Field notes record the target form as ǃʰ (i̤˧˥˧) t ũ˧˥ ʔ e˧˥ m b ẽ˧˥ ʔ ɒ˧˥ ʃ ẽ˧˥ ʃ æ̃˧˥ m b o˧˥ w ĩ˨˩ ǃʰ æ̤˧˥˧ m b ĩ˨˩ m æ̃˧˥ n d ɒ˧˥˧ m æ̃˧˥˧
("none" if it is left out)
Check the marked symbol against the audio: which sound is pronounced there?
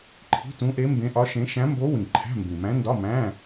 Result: i̤˧˥˧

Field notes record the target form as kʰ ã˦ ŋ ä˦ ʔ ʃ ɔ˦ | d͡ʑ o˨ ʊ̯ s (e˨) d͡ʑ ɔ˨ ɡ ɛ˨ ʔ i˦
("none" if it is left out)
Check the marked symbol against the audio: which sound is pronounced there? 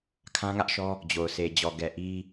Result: e˨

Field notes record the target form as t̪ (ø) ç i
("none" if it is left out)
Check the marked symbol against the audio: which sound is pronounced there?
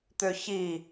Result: ø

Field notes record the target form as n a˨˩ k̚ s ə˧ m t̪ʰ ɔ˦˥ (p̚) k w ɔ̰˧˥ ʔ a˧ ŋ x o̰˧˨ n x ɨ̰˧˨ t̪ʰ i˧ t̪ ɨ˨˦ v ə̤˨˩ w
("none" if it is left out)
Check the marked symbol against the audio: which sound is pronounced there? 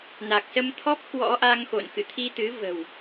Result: p̚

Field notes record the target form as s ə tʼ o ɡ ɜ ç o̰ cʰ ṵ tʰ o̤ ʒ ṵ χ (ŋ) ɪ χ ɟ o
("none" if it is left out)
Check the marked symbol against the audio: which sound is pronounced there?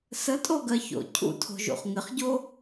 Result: ŋ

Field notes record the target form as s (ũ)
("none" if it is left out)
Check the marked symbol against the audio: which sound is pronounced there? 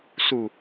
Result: u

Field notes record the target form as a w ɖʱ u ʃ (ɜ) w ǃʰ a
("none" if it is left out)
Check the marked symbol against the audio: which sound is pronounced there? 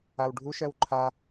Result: ɜ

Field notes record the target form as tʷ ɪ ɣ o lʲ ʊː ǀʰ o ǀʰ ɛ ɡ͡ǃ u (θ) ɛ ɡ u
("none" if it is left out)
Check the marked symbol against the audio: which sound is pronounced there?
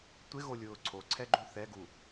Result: θ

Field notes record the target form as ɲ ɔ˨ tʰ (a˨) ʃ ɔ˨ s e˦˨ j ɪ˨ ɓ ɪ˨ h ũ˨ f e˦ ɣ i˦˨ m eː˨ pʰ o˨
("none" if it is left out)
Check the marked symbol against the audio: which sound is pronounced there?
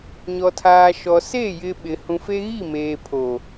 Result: aː˨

